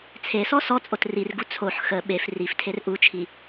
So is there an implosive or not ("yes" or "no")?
yes